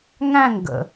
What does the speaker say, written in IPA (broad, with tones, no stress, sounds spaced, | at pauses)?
ŋ æ̃˦˨ ŋ ɡ ə̰˨